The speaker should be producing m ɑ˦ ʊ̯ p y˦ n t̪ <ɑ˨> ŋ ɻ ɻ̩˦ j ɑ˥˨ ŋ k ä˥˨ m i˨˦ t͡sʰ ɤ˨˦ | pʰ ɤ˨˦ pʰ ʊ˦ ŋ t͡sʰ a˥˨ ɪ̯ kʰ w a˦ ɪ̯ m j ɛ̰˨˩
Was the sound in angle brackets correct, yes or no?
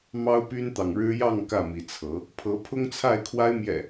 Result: yes